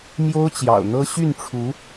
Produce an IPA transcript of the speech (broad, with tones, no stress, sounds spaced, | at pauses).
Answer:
m j o˥ ʊ̯ t͡ɕ j ɑ̰˨˩ ʊ̯ n̪ ɤ˥ ɕ y˥˩ n ʈ͡ʂʰ u˧˥